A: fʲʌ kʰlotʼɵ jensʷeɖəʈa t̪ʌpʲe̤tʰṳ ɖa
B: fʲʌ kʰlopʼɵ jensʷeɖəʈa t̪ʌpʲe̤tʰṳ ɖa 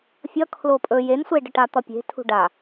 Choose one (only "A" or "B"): B